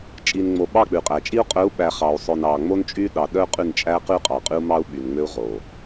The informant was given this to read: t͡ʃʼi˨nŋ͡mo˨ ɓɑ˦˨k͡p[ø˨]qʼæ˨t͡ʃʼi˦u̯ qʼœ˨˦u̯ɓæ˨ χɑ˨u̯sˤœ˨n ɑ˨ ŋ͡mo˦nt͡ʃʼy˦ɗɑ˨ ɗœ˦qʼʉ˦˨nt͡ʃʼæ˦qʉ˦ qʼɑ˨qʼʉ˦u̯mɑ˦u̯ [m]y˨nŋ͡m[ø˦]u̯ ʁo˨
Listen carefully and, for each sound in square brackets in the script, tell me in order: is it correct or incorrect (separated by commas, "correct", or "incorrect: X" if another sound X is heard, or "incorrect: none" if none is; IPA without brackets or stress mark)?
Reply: incorrect: ʉ˨, incorrect: ɓ, correct